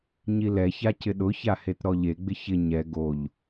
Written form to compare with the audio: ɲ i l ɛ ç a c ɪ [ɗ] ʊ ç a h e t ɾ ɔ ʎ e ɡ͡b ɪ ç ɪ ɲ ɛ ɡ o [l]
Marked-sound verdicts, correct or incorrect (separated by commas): correct, incorrect